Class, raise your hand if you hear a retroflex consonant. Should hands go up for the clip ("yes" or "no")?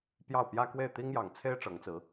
yes